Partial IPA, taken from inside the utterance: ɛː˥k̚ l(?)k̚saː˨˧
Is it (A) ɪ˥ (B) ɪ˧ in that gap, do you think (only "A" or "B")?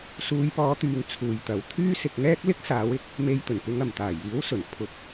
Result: A